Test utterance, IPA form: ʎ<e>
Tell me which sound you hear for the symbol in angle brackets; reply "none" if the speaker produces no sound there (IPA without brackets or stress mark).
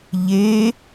e